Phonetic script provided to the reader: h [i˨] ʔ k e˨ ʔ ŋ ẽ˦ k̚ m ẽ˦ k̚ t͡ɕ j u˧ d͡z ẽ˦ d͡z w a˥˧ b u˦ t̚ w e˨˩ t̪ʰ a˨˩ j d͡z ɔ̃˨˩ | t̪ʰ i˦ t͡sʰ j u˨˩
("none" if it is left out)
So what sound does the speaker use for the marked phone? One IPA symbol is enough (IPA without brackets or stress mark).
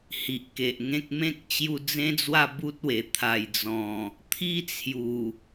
i˨